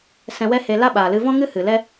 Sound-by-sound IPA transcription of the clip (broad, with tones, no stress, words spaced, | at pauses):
sɛ̃˧wɛ˦he˧ la˦ɓaː˨lɨ˧ vɔ̃˦ŋɨ˦ hɨ˨lɛ˦